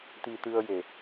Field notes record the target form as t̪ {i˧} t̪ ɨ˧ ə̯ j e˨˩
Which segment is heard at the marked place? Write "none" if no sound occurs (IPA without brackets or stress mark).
i˧